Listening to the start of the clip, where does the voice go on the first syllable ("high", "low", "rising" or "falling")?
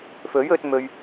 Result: rising